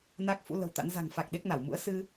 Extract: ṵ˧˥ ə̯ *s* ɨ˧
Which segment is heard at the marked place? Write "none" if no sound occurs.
s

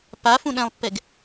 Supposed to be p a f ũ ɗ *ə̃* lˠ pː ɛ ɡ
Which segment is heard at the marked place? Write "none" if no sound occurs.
ɛ̃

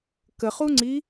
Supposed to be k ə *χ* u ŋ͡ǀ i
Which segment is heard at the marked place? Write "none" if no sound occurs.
χ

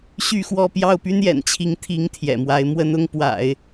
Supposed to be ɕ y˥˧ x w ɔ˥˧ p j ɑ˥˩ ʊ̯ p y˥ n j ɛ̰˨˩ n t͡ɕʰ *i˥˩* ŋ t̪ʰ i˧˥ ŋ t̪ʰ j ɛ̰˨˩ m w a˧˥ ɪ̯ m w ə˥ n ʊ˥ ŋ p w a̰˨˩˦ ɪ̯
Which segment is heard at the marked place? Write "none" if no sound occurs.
i˧˥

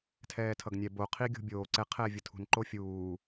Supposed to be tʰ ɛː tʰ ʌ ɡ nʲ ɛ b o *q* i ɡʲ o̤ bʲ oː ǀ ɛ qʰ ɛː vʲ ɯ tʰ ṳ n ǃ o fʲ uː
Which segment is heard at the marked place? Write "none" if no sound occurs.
qʰ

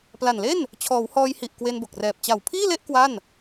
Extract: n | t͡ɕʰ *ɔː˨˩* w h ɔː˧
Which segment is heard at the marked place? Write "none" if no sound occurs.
ɔː˩˦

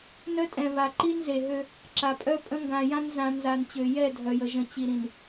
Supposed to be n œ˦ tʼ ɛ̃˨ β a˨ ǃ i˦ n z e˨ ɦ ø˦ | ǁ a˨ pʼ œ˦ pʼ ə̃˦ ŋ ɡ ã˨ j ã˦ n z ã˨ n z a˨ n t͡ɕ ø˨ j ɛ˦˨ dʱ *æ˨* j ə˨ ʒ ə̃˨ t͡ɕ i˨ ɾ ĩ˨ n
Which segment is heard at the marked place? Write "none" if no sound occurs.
œ˨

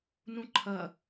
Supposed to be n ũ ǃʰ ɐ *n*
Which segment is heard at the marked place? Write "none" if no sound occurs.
none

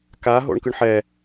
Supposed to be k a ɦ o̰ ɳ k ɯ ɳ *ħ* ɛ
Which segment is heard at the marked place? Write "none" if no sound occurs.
ħ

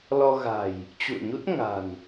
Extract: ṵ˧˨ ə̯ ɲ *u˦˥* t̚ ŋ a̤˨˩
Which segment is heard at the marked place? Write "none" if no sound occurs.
u˦˥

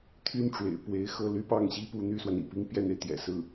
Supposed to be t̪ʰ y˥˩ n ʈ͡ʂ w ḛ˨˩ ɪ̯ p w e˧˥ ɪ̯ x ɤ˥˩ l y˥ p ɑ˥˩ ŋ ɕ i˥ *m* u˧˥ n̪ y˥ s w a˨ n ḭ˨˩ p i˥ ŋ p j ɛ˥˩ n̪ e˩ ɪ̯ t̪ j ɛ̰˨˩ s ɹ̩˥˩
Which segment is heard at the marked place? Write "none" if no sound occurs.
p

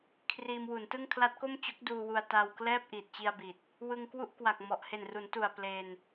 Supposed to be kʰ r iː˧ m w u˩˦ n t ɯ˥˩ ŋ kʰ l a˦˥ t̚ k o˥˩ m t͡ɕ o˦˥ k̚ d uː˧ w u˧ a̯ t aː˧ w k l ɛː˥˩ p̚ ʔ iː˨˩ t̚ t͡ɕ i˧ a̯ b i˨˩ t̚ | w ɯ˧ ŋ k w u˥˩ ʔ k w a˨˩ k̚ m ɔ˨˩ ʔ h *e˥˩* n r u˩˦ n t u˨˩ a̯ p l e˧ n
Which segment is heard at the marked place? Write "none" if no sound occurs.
e˨˩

